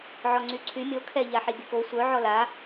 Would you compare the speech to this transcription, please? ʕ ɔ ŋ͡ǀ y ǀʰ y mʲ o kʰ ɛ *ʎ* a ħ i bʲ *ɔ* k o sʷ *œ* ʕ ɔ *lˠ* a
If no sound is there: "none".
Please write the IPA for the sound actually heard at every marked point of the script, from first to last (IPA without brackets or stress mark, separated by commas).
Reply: ʎ, ə, œ, l